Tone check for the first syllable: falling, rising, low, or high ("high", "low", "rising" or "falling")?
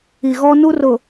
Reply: low